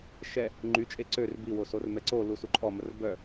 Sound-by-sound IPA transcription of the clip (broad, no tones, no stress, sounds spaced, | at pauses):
ʃ ɛ | ŋ͡ǃ y t͡ʃʼ e ǀ ø r b i w o s o r m ɛ ǀ o l u s u ǃʼ ɔ m ə r b œ